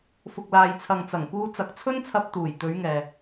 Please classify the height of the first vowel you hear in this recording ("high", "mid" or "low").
high